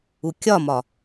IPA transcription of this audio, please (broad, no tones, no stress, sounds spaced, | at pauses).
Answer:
u kʲ ɒ m ɒ